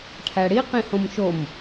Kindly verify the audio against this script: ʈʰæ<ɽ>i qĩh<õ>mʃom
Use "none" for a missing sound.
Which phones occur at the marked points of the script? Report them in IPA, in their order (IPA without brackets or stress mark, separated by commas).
ɽ, õ